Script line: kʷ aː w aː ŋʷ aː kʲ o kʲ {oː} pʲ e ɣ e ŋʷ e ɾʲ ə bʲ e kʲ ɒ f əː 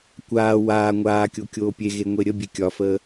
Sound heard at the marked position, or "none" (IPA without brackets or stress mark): oː